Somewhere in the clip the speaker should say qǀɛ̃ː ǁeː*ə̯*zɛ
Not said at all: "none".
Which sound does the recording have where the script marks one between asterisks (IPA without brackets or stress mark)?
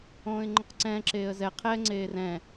ə̯